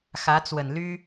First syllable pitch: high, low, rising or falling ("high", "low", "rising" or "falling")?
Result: rising